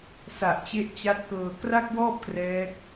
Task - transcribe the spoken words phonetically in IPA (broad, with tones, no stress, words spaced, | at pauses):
sa˨˩ʔt͡ɕe˦˥ʔt͡ɕa˦˥t̚kɤː˧ kra˥˩k̚wɔː˥˩p̚ krɛː˦˥k̚